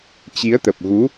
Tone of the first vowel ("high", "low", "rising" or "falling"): rising